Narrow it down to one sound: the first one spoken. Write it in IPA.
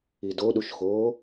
i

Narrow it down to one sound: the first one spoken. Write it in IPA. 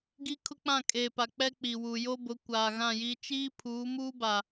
ɡ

